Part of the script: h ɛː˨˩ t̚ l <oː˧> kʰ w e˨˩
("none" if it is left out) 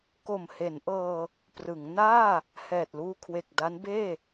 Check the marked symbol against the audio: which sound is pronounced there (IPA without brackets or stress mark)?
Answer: uː˧